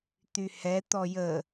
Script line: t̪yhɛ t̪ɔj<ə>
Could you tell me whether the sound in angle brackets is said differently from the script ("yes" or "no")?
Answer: no